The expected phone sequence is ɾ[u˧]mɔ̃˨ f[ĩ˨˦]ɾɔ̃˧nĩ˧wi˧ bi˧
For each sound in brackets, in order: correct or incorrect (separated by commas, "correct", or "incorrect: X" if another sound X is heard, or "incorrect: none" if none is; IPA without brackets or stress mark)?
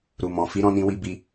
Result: incorrect: u˨, incorrect: i˨˦